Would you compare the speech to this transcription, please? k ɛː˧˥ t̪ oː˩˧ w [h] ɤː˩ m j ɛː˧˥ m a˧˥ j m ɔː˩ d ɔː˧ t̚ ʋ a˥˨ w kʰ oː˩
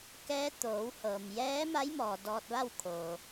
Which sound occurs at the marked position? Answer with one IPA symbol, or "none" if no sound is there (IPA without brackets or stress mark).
h